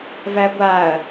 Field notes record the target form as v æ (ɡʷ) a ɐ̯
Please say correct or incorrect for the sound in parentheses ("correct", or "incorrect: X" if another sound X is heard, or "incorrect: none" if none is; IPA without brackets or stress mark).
correct